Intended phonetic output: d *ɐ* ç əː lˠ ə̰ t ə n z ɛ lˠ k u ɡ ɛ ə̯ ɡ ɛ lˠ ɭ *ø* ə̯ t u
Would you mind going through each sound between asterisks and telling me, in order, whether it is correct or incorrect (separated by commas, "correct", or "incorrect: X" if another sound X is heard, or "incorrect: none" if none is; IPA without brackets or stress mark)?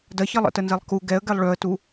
correct, correct